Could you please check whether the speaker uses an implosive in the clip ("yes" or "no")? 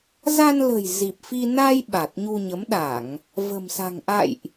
yes